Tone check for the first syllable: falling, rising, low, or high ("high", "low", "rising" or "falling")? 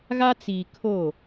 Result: high